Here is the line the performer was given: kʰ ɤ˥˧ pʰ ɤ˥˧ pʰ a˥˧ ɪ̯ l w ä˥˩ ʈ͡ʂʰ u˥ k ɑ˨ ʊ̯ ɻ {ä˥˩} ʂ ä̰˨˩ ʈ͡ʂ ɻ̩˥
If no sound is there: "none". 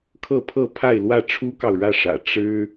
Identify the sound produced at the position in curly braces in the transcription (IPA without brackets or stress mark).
ä˥˩